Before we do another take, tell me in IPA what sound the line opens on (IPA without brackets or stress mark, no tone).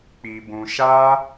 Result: k͡p